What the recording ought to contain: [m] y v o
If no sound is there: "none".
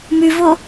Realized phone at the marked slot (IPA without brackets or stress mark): m